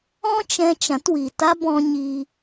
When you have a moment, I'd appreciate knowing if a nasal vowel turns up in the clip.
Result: yes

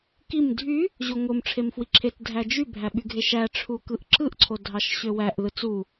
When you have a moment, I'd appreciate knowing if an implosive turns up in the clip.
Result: yes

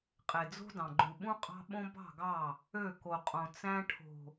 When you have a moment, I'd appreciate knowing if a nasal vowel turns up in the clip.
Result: yes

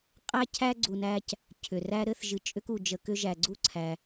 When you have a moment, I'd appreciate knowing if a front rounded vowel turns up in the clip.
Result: yes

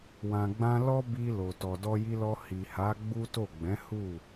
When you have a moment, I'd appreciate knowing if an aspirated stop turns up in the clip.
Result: no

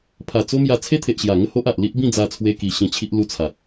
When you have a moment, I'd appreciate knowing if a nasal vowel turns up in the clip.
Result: yes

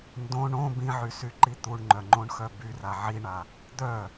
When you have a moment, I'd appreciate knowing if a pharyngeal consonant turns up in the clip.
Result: yes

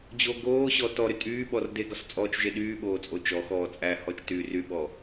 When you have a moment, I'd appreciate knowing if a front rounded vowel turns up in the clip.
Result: yes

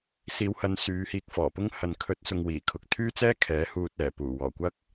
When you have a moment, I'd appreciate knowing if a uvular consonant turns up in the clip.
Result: no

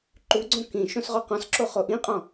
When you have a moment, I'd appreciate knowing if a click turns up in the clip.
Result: yes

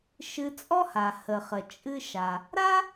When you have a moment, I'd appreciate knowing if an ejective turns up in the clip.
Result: yes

